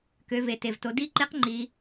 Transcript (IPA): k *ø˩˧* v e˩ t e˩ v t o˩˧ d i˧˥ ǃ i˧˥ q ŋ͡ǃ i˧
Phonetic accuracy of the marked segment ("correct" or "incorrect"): correct